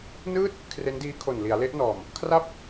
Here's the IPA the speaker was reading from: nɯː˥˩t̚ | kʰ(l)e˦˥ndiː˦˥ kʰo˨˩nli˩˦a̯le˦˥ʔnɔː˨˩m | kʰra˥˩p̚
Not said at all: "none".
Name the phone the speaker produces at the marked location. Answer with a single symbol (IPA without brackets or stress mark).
r